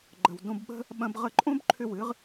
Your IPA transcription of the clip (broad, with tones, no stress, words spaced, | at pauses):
ɡ͡ǃə˨w dõ˧bɓə̤˦ | ɓɐ̃˦b ʁə˧ǃʼõ˦b ǃʰʏ˦˨wɨ˦ʁ